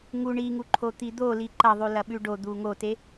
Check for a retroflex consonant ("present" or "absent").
present